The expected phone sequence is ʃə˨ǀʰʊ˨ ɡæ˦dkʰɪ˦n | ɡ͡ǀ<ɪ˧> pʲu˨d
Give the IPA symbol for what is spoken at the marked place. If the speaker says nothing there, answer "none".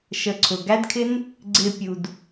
ɪ˨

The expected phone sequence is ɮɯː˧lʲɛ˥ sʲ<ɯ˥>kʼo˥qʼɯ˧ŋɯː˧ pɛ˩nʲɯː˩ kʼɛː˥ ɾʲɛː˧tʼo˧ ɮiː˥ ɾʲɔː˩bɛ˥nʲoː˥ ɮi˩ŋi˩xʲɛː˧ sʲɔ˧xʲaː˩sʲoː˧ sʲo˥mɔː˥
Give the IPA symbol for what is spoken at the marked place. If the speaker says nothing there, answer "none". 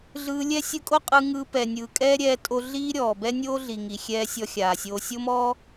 ɯ˧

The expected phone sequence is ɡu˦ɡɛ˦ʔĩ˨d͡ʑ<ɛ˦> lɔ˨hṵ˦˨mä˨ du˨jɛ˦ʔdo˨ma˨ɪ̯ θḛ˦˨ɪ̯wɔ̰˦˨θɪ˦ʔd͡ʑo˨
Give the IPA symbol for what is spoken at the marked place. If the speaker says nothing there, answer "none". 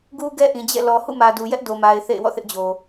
ɛ̰˦˨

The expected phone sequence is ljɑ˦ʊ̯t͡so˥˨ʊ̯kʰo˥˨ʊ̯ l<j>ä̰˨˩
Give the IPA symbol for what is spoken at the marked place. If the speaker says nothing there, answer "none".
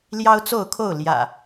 j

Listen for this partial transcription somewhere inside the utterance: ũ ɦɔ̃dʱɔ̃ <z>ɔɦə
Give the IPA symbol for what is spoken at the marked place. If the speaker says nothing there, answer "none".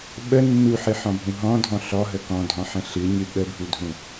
ɬ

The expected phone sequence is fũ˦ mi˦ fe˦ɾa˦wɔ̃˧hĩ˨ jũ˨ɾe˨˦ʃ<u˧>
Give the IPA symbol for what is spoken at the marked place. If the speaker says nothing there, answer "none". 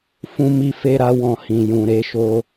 o˧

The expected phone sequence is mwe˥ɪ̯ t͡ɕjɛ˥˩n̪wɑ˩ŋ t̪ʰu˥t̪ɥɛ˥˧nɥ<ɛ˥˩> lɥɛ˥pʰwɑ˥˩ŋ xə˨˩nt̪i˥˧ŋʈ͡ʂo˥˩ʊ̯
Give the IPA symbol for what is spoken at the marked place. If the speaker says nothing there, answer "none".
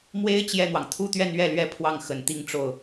ɛ˥˩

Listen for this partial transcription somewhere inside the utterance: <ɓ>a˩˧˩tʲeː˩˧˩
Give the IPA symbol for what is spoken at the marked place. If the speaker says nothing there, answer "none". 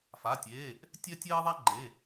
f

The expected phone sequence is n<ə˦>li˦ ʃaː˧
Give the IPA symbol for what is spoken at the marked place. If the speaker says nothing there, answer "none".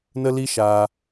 ə˦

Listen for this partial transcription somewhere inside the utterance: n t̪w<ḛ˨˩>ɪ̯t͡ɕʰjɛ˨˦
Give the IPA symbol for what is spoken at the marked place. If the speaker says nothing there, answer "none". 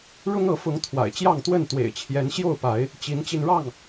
ḛ˨˩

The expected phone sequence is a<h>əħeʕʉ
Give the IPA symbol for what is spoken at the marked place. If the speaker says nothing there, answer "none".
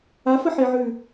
f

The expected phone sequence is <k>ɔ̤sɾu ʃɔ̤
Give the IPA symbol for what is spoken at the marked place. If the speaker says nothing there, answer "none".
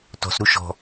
t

